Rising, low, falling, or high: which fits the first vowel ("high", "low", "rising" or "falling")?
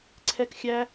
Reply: high